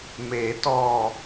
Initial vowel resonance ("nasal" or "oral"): oral